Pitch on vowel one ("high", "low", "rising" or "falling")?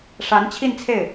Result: rising